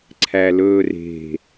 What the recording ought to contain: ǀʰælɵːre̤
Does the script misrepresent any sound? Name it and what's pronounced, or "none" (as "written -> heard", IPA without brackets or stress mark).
none